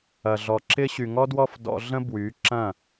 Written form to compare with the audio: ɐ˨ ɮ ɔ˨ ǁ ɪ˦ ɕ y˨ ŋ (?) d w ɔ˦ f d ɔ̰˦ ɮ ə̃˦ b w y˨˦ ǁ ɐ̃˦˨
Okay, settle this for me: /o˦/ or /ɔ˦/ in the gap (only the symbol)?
ɔ˦